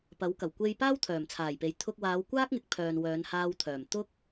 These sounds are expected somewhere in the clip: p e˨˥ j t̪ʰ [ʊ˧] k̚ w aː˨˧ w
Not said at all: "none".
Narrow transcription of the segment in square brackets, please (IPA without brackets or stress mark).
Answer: ʊ˧